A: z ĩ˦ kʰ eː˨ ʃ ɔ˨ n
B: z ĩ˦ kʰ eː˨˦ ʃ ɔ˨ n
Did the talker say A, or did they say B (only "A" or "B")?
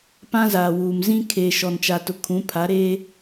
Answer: A